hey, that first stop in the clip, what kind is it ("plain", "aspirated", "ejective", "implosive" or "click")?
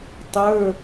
plain